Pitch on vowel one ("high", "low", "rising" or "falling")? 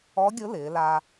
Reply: rising